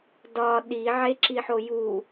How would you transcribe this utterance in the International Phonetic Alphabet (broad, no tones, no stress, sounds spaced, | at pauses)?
d ɒ ɗ i ʕ e ǁ i ħ o j u